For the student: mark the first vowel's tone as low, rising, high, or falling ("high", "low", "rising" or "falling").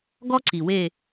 high